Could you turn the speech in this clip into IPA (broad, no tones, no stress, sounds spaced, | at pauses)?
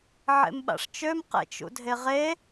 ʕ ḛ m ɓ a̰ ʂ t͡ʃ ø m q ḛ t͡ʃ ṵ dʱ e ʁ e